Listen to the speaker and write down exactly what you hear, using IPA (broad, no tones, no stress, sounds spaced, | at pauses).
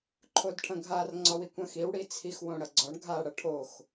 ǃʰ o d ʈʰ ɐ̃ ɡʱ a r ŋ͡ǀ ɒ w i kʷ ɐ̃ x i w ɽ i t͡sʰ i x w õ ɽ ɐ ɡ͡ǀ ɒ ɳ ɡʱ a ɽ ɐ ʈʰ o x